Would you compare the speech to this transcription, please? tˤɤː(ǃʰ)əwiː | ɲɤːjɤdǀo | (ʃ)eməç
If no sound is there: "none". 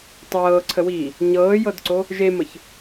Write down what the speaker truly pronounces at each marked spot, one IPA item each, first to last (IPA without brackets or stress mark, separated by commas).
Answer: ǀʰ, ʒ